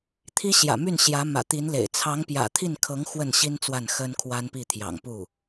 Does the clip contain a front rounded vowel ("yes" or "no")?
yes